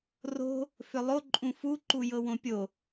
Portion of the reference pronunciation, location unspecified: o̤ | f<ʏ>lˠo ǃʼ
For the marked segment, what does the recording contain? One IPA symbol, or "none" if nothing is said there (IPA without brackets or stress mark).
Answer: ʏ